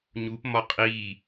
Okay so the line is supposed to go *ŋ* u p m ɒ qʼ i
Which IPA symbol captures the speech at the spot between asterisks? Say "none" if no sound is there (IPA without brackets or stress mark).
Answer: ɲ